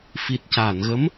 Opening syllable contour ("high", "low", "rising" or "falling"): low